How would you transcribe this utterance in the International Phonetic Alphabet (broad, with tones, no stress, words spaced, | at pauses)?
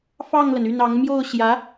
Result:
fɑ˥˩ŋlə˩n y˥˩nɑ˧˥ŋ mjo˥˩ʊ̯ɕjä˧˥